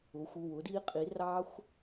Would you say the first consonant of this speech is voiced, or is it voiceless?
voiceless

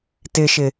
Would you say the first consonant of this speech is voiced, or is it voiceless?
voiceless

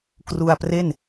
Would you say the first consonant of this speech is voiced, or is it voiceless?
voiceless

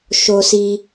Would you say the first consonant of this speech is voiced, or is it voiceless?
voiceless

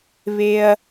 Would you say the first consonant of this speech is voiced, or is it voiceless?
voiced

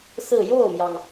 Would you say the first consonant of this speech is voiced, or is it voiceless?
voiceless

